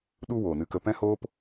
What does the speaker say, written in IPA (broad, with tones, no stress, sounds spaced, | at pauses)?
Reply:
ɗ u˧ w oː˨ n ɨ˧ k ə˧ p ɛ̃˦ h oː˦ p